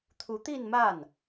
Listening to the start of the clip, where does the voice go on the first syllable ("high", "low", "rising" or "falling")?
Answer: rising